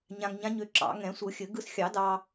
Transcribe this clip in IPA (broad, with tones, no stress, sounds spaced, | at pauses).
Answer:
ɲ ã˧ ŋ ɲ ã˧˥ ɲ ø˧ ǁ ɑ̰˨˩˦ ŋ ɛ̃˨˩˦ sʷ ɯ˨˩˦ xʲ ɘ˨˩˦ ɡ ɯ˧ s xʲ ɑ˨˩˦ d ɑ˧